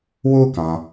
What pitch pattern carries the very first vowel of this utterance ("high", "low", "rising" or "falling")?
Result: high